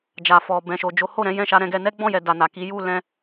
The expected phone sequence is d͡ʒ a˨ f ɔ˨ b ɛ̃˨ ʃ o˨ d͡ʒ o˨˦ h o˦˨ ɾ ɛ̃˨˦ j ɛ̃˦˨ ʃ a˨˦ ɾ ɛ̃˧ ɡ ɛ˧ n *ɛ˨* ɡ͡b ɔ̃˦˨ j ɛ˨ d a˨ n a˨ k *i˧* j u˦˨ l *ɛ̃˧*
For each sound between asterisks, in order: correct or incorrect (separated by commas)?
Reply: incorrect, incorrect, correct